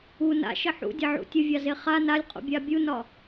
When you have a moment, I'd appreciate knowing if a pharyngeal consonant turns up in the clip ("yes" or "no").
yes